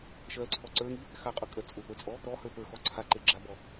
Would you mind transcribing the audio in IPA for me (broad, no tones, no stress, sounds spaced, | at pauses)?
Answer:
ʃ ɜ ǀʰ ɔ ǀ ə˞ ŋ i | x a qʼ ʊ kʼ ɜ t͡sʼ ʊ p ə˞ t͡sʼ ɔ | ɾ ɔ h ə˞ p ə˞ x ɔ ǀʰ a ǃ e ɡ͡ǁ a b ɔ